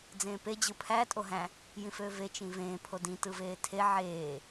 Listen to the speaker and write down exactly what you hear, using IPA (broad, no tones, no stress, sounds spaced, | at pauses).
d͡z ẽː p e d͡ʑ ɯ pʰ æ tʼ o ɦ æ̃ | j ĩ f øː v e t͡ʃ ĩ v ẽː pʰ o d ĩ t ɯ v eː tʰ e ʕ eː